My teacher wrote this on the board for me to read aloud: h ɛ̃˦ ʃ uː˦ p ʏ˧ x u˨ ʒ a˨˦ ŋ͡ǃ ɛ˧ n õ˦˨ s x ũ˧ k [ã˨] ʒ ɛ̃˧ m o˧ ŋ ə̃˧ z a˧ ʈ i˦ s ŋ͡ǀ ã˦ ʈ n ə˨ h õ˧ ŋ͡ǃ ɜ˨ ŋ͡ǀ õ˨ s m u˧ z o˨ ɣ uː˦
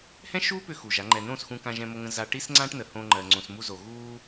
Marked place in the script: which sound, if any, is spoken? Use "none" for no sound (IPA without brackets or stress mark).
ã˧